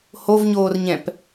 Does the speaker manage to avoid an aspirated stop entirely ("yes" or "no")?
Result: yes